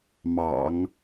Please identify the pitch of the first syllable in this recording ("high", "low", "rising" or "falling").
low